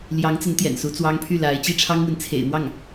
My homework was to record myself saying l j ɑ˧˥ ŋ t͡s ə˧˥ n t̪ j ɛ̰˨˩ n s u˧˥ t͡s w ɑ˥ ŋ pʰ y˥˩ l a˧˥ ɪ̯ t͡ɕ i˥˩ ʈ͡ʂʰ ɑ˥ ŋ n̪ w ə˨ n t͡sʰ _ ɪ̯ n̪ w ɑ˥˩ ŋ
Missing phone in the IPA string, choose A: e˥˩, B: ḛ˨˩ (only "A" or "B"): B